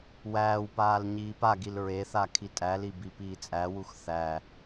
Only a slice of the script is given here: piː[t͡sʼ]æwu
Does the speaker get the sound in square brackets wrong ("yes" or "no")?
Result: no